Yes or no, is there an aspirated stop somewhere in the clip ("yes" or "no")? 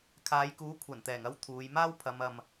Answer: yes